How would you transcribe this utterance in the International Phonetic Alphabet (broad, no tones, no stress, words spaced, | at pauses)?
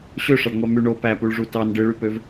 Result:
ɕøʂɑɖŋʷɑ my ɳo pæpuɭʐu tɑn ɖɯɭypøv